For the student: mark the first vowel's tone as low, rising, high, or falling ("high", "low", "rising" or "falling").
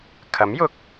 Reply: rising